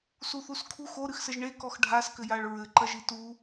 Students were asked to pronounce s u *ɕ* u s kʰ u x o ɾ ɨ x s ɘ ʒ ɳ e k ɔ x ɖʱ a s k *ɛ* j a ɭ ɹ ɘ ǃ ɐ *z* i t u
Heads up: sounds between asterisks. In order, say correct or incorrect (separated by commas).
incorrect, incorrect, incorrect